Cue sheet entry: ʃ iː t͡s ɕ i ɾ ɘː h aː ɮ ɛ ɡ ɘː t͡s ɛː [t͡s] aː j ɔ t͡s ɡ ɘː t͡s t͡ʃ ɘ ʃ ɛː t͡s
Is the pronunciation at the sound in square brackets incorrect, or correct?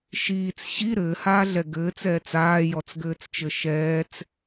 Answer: correct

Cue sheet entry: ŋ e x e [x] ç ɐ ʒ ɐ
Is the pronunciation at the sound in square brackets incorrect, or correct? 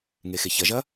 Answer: incorrect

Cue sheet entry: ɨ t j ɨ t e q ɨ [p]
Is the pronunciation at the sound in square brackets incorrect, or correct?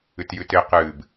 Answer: incorrect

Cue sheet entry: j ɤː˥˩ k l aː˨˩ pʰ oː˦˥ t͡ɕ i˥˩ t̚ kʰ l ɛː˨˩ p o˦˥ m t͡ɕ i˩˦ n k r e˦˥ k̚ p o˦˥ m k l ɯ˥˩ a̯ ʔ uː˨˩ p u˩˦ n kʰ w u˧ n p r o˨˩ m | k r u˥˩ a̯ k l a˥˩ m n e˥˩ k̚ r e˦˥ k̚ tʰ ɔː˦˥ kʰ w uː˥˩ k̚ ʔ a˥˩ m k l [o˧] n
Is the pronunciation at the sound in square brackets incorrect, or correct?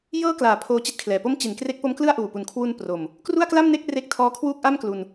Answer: incorrect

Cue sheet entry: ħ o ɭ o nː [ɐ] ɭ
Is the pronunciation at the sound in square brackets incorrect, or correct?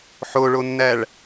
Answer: incorrect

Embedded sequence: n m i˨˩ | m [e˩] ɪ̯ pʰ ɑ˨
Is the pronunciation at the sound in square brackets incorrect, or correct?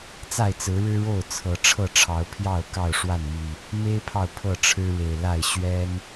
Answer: incorrect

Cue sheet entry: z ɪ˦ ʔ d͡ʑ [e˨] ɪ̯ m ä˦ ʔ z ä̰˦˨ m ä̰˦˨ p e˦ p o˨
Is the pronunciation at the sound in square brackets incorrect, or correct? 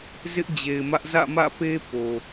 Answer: correct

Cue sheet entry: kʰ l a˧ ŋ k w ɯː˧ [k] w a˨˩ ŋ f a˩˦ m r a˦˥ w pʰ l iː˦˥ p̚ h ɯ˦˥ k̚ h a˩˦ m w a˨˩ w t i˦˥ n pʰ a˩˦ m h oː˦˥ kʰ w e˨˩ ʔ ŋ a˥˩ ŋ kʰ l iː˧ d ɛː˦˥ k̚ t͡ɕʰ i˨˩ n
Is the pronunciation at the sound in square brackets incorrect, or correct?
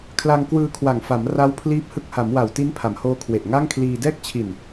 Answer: incorrect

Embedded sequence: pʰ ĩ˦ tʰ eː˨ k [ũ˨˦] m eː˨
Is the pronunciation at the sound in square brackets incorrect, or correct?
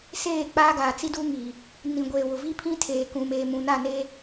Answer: incorrect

